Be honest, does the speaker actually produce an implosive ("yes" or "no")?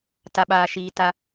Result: yes